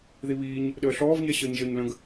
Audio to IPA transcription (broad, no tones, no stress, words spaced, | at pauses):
ðiβiːɲ | ɗəːɬɔːv ɲɛɕəːɲʒəːɲlə̃ɡ